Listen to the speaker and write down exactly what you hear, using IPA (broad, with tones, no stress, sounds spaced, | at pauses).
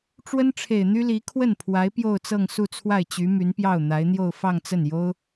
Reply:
ʈ͡ʂ w ə˥ n ʈ͡ʂʰ e˨˩ ɪ̯ n̪ y˥ l i˧˥ kʰ w ə˥˩ n pʰ w a˧˥ ɪ̯ p j o˥˧ ʊ̯ t͡s ɤ˥˧ ŋ s u˥˧ t͡sʰ w a˥˩ ɪ̯ t͡ɕ y˧˥ m y˧˥ n p j ɑ˥˩ ʊ̯ n̪ a˧˥ ɪ̯ n̪ j o˥˧ ʊ̯ f ɑ˥˧ ŋ t͡s ə˥˩ n j o˥ ʊ̯